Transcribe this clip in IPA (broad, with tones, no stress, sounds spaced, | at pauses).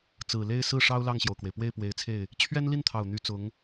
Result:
t͡s ɹ̩˨˩ l e˥ ɪ̯ s ɹ̩˥˩ ʂ ɑ˥ ʊ̯ l ɑ˥˩ ŋ ɕ j o˩ ʊ̯ k w e˩ ɪ̯ p w e˥˩ ɪ̯ p w e˧˥ ɪ̯ t͡sʰ e˥˩ ɪ̯ | t͡ɕʰ ɥ ɛ˥ n l i˥˩ n t̪ʰ ɑ˨˩ ʊ̯ n̪ y˧˥ t͡s ʊ˧˥ ŋ